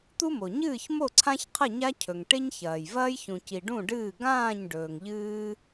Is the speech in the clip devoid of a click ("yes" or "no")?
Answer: no